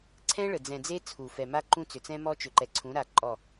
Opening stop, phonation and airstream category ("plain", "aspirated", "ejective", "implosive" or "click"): click